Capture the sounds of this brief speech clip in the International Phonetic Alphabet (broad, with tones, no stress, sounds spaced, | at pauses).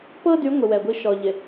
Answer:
p ɤ˦ d y˨˦ ŋʷ ɪ˨ w ɛ˨ ɡʷ i˦ ʃ ɔ˨ ʎ ɪ˨